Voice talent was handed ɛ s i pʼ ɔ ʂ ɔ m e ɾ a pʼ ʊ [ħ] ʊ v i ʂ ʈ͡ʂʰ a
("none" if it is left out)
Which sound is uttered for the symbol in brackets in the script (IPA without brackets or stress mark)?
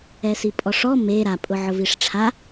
ʕ